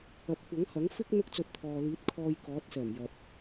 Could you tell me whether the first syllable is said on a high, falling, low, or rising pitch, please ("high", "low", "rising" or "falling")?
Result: rising